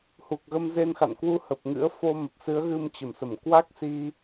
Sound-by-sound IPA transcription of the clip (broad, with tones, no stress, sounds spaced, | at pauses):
h u˨˩ k̚ ɣ ə˧ m z e˧ n x a̰˧˨ n k w u˧ h ə˨˩ p̚ ŋ ɨ̰˧˥ ə̯ f o˧ m ə˨˩ p̚ s ɨ˨˦ ə̯ ɣ ɨ˧ m t͡ɕ ə˧˩ m s ə˧˩ m k w a˦˥ k̚ s i˧